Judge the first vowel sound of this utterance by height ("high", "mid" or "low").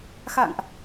low